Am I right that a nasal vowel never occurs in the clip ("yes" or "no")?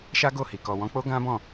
no